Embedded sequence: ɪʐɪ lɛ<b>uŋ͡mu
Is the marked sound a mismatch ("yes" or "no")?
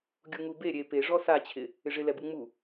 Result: no